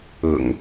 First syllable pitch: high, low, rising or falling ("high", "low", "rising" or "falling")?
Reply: low